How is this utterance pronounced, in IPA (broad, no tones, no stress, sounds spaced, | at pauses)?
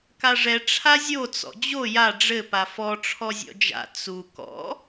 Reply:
k a ʐ ɛ ʈ͡ʂʰ a zʲ o t͡s ɔ̰ d͡ʑ o j a ɖ͡ʐ ɘ p a f ɔ ʈ͡ʂʰ ɔ zʲ ɔ̰ d͡ʒ a̰ t͡s u k ɔ̰